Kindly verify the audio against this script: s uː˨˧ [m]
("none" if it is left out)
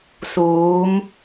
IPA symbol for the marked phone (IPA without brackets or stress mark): m